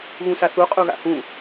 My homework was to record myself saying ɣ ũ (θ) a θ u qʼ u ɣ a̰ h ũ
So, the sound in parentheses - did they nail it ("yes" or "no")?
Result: no